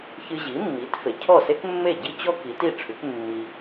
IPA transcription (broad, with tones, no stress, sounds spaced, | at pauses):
ç ɨ˧ ʑ i˩˥ mː i˩˥ t f e˩ cʰ ɔ˥˩ s e˥ k mː e˥˩ ɟ i˥ t͡ɕ ɔ˥ k i˩˥ t i˥˩ ʈ͡ʂʰ ʉ˩˥ k mː i˧